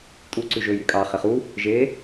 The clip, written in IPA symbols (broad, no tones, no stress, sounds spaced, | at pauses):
tʼ u ǀ ʉ ʒ ɵ j y kʼ ɑ χ e χ u | ʒ e